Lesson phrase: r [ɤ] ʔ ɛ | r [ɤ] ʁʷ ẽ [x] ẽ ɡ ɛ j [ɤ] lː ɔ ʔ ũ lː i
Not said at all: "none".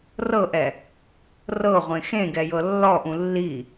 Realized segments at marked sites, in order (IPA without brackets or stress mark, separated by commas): ɤ, ɤ, x, ɤ